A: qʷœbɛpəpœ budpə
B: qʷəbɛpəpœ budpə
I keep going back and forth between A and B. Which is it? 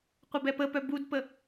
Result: B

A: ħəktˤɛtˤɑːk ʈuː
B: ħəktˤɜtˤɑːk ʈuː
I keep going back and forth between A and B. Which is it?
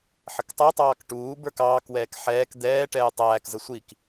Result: A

